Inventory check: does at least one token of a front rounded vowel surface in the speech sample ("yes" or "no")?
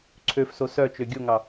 yes